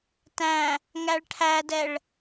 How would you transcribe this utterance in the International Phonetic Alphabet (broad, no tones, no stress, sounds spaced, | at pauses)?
t æ̃ | ŋ æ ɭ ʈʰ æ d ɛ ɭ